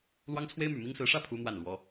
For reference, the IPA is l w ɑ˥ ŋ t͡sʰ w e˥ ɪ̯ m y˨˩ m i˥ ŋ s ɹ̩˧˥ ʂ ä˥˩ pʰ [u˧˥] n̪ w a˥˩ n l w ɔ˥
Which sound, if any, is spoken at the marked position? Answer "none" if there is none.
u˥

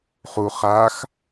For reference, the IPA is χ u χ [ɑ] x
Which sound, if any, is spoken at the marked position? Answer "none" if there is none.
a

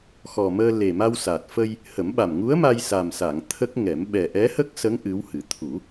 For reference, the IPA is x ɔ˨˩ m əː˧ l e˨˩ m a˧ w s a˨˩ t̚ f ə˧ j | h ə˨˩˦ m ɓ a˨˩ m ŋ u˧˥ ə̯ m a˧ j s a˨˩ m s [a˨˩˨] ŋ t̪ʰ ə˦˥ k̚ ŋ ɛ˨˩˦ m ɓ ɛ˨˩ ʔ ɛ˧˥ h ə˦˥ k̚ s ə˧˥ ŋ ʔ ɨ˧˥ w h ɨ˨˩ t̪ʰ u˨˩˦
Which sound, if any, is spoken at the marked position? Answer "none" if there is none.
a˨˩˨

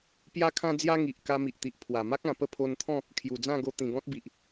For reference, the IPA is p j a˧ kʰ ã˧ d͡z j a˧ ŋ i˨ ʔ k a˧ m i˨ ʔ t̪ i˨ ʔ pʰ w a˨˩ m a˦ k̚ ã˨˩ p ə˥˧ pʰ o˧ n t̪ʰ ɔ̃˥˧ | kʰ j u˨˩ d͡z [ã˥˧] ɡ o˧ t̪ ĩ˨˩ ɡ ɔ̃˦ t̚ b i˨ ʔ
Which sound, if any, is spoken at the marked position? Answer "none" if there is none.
ã˥˧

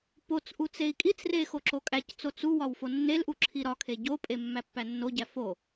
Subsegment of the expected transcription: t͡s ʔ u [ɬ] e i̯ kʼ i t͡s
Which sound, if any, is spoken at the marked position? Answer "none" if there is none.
t͡s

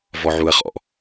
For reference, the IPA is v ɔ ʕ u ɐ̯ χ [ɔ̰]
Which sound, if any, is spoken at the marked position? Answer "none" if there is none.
ɔ̰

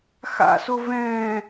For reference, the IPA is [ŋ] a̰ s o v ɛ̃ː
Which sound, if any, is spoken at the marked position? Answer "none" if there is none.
x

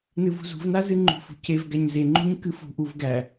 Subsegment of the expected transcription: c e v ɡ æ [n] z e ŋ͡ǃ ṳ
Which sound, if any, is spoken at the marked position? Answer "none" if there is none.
ɲ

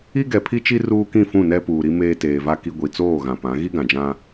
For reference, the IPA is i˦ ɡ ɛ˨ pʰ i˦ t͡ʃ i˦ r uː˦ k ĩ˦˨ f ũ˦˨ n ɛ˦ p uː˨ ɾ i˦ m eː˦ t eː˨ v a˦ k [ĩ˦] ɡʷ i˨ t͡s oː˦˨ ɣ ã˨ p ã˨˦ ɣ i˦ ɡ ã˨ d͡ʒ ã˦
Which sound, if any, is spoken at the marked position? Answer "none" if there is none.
i˦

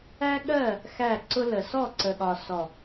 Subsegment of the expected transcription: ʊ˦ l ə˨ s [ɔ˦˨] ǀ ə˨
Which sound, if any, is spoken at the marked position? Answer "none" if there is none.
ɔ˦˨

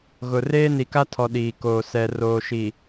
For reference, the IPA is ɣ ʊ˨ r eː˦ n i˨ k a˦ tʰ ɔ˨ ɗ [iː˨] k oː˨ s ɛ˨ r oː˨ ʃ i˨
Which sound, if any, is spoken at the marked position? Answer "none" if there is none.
iː˨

